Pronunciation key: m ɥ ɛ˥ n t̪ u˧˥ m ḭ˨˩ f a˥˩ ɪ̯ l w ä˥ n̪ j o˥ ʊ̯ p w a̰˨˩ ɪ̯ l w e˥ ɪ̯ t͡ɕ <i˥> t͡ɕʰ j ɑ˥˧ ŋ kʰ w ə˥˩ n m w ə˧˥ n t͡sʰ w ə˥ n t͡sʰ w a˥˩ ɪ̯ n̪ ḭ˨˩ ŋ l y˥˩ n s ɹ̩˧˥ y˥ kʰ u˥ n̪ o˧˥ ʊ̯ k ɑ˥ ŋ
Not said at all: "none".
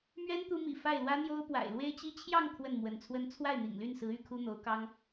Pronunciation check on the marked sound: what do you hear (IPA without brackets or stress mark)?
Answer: i˥